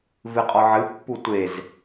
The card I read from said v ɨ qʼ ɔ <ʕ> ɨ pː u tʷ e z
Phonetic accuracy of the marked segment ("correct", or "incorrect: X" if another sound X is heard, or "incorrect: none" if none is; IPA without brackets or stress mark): correct